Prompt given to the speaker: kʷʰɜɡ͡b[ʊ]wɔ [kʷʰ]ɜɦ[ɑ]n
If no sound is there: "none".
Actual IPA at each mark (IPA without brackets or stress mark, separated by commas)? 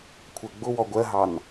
ʊ, ɡʷ, ɑ